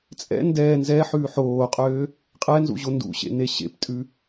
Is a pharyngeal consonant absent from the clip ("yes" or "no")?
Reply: no